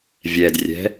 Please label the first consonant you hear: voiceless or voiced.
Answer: voiced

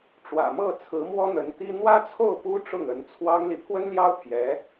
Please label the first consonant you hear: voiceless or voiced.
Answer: voiceless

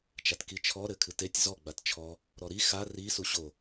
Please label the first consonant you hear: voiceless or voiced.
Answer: voiceless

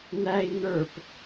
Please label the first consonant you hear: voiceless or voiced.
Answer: voiced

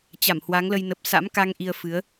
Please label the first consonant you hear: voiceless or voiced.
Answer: voiceless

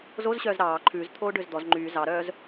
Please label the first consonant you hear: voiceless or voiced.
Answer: voiced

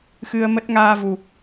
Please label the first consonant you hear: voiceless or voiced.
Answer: voiceless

